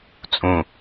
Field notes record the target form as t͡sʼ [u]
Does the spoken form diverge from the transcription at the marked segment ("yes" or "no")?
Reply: yes